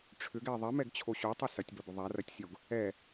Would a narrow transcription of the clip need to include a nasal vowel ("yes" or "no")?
no